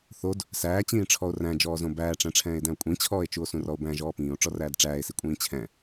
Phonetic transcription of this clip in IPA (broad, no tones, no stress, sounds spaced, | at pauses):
θ o d | s æː t͡ɕ ĩː ʈ͡ʂʰ ɔ o̯ r æ̃ d͡ʒ ɔː z õ b æː ʈ͡ʂ æ̃ ʈ͡ʂʰ ɛ̃ː e̯ d æ̃ o̯ kʷʼ ĩ t͡ɕʰ ɔː e̯ t͡ʃ u o̯ s ũ r ɔ o̯ b æ̃ ʒ ɔː p ĩː o̯ ʈ͡ʂ ɔ r æː d ʈ͡ʂ æː e̯ s i kʷʼ ĩː t͡ɕʰ ɛ̃